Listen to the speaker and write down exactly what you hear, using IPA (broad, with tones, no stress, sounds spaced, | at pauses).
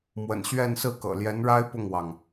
m w ə̰˨˩ n ɕ ɥ ɛ˥˧ n s ɹ̩˥˩ k ɤ̰˨˩ l j ɛ˧˥ n ɻ a˥ ɪ̯ p ʊ˥˩ ŋ w ɑ˩ ŋ